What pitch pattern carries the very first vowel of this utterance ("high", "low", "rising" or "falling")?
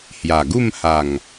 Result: low